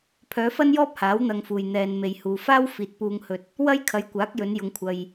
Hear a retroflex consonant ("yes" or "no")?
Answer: no